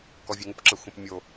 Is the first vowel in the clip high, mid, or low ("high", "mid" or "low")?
mid